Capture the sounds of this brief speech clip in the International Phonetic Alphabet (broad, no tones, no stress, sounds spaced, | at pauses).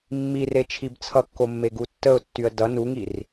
mː i r e t͡ʃʰ i b t͡sʰ ʌ kː o mː e ɡ u tː ə ʊ̯ tː y ə̯ d ʌ n u ŋ i r